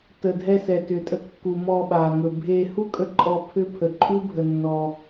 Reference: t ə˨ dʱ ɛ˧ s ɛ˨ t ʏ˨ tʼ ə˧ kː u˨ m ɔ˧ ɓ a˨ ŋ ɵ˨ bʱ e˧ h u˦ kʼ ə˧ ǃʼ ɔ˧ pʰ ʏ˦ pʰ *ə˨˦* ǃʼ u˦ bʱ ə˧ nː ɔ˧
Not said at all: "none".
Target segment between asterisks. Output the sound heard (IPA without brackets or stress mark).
ə˧